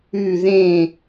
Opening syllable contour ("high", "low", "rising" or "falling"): falling